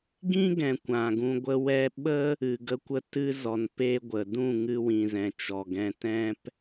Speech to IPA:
ɡ ĩ˦ ɡ ɛ̃˨ kʷ ã˨ ɡ ũ˧ ɡʷ ə˧ w ɛ˧ ɓ ə˦ | ɨ˨ ɡ ə˧ kʷ ə˧ t ɨ˧ z ɔ˨ n p e˧ ɡʷ ə˨ d ũ˦˨ ŋ ɨ˧ w ĩ˨ z ɛ̃˨ t͡ʃ ɔ˨ ɡ ɛ̃˧ t ɛ̃˧ p

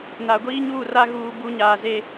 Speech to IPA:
n a˨ ɡʷ iː˦ ɲ uː˦˨ r a˦ ɣ uː˦ b u˦ ɲ aː˨ z e˦

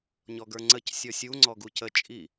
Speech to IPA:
ɲ ɔ ɡ ə˞ ŋ͡ǀ ə c sʲ ɔ sʲ u ŋ͡ǀ ɔ ɡ u c ə t͡ʃʼ i

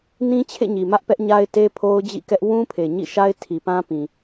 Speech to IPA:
n ĩ˦ t͡ɕʰ ḛ˦˨ ɲ i˨ m ä˦ ʔ p ɛ˦ ʔ ɲ a˦ ɪ̯ t e˦ pʰ o˦ ʊ̯ d͡ʑ ḭ˦˨ k ɛ˦ ʔ w ũ˦ pʰ e˨ ɲ ḭ˦˨ ʃ a˦ ɪ̯ tʰ i˨ p ã˦ p ĩ˨

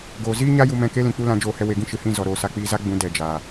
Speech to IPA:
ɡ oː˨ z iː˦ ɲ a˦ j u˧ m ɛ̃˧ k e˦ l ĩ˨ k͡p u˧ l ã˧ d͡ʒ oː˧ h ɛ˧ w e˨ ɡ ĩ˧ ʃ ɨ˨ h ĩ˦˨ z ɔ˨ ɾ oː˨ s a˧ k͡p iː˧ z a˦ ɡ͡b ũ˨˦ d ɛ˨ d͡ʒ aː˨

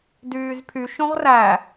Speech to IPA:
d yː z pʰ y ʃ õ ʁ r æ

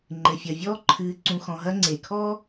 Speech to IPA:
ŋ͡ǃ ɘ˩ fʲ ɐ˩ vʲ ɔː˦ ǃʰ ɨː˨ ǀ ũ˨ x ɔ̃˨ ɦ ɐ˦ ŋ͡ǀ e˩ kʰ ɔ˥

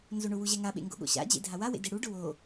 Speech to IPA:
n z o ɳ ʊ w u ʑ ɛ ŋ a ɓ ḛ ŋ ɡ o̰ ɠ o̰ ɕ a̰ d͡ʑ ḛ dʱ a w a w ḛ d e ɽ u ɖ ʊ w o

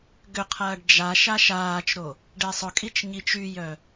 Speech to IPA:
ɡ ʏ qʰ ɐː ɖ d͡ʒ a ʃ a ʃ aː t͡ʃ ɾ o | ɖ e sˤ ʊ kʼ i t͡ʃ ɲ i t͡ʃ y j œ

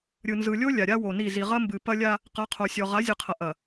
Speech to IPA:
ɾʲ ɯ˨ n z ɯ˨ lʲ o˦ lʲ a˨ ɾʲ a˦ w o˨ n i˦˨ z i˨ ʁ ɐ˦ m b ɨ˨ p ɐ˦ lʲ a˦ | q ɐ˨˦ qʰ o˨ sʲ ɔ˨ ʁ a˨˦ zʲ ɯ˨ qʰ ɐ˨ ʔ ɐ˨

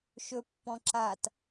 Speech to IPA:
ʃ ɵ pː ɔ̃ ǁ a t

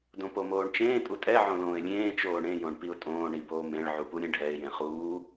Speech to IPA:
d õ p o m oː ɳ t͡ʃ ẽː tʼ u tʼ ɛ ʕ õ l õː ɪ̯ lʲ ẽː t͡ʃ oː ɳ ẽ j õ ɳ p i ʊ̯ tʼ õː ɳ i b oː m ẽ ɭ ʕ u p u ɾʲ ẽ ɖʱ ɛ ɪ̯ j ẽ χ uː

